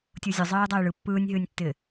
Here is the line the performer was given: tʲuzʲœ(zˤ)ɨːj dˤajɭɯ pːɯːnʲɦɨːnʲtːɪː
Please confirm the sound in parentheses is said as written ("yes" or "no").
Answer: yes